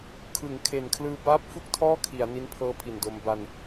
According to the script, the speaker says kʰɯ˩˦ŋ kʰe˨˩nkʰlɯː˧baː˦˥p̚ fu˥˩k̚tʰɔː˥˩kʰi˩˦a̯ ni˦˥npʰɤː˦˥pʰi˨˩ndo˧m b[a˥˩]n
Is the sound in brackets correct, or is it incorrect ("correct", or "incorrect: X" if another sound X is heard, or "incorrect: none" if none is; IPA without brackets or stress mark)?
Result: incorrect: a˧